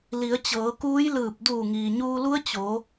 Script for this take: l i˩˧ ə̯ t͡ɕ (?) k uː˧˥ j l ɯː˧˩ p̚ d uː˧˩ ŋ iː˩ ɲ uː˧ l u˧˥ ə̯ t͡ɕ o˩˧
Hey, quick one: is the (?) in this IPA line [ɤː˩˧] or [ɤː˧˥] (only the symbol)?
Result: ɤː˩˧